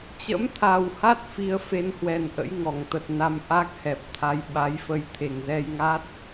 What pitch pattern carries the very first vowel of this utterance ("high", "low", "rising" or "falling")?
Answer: rising